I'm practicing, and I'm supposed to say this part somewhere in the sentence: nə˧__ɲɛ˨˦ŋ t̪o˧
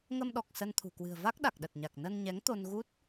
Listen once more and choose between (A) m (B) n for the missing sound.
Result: B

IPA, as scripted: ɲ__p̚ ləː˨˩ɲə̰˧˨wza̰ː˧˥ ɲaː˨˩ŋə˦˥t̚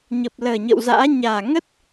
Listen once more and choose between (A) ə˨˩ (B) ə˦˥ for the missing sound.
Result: A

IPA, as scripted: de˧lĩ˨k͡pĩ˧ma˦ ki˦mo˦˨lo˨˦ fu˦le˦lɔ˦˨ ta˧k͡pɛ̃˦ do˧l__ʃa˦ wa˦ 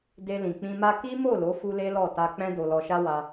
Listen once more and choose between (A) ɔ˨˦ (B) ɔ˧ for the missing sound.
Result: B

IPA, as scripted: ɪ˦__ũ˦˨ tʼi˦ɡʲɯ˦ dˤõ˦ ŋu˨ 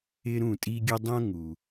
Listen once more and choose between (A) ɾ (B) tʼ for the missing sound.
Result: A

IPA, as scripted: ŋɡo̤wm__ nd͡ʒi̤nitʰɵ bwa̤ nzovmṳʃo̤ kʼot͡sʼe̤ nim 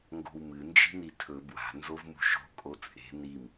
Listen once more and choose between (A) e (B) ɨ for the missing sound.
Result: B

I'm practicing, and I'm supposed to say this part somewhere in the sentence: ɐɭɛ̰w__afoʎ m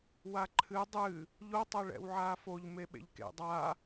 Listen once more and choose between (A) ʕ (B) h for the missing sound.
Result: A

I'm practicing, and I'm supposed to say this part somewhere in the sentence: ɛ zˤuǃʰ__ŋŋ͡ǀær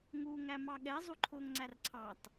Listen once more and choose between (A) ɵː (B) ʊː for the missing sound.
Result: B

